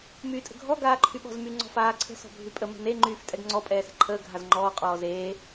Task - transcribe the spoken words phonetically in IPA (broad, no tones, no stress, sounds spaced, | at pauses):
m yː tʼ ə̤ ɡʱ ɔ ɡ aː ǃʰ y ɓ ɔ̤ z m y ŋ͡ǀ ɔ̤ f aː ǀʰ ə̤ s ɔ̤ bʱ y pʼ ə m ə̤ n e ŋ͡ǃ yː f tʼ ɛ ɡ ŋ͡ǀ ɔ pʼ ɛː s ɛ̤ ǃʰ əː ɡʱ a z ŋ͡ǃ ɔː qʼ ɔː z eː